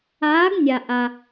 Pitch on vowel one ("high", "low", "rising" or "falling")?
rising